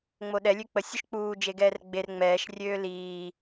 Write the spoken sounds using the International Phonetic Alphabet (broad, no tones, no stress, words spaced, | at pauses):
ŋ͡moɗɛ lʲøk͡pə sʲuʃk͡puː d͡ʒeɡɛːrɡ͡ber ŋ͡mɛːʃ rʲøːliː